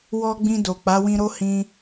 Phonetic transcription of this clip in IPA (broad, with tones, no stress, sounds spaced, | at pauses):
w ɔ˧ ɡ͡b ĩ˧ d o˨ k͡p a˨˦ w ĩ˧ ɾ o˦ h ĩ˧